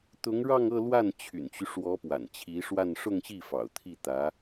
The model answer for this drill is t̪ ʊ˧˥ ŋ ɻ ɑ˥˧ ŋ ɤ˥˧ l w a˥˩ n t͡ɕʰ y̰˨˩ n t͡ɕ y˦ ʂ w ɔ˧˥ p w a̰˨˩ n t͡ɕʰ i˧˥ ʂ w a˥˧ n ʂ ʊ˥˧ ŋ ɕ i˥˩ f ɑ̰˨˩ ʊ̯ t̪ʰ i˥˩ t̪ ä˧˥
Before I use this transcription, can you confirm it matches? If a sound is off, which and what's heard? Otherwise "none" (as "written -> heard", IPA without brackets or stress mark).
none